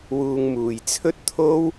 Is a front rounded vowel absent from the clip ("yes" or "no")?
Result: yes